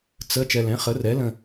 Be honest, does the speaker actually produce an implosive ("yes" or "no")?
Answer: no